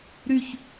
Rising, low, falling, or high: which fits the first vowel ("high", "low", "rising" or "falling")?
falling